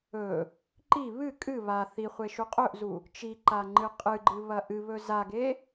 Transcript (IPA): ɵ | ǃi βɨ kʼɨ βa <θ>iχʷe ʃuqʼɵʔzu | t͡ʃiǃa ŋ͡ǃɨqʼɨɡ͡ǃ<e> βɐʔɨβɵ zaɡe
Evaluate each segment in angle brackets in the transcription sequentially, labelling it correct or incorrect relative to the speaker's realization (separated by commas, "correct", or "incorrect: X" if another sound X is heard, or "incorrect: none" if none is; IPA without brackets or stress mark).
correct, incorrect: ɨ